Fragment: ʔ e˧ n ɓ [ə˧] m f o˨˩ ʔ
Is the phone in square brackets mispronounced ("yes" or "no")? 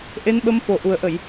no